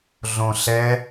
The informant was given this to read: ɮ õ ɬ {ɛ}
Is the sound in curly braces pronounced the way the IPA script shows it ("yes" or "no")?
yes